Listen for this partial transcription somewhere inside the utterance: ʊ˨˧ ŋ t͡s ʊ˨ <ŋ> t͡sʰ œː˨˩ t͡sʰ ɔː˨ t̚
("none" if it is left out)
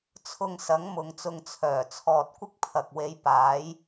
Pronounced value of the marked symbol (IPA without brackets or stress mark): ŋ